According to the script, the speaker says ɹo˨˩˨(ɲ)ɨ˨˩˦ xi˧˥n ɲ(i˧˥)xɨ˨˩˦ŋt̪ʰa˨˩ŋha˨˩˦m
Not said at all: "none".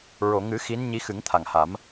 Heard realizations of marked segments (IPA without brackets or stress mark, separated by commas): ŋ, i˧˥